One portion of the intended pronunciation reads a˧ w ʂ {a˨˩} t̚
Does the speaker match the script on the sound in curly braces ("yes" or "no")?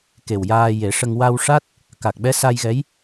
no